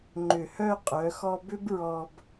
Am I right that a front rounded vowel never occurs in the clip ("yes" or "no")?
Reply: no